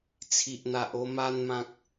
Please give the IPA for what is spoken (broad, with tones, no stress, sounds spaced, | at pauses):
t͡sʰ i˨ ʔ n̪ a˨ ʔ o˧ m a˧ n m ã˨ k̚